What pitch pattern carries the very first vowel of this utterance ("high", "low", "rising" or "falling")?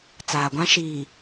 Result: low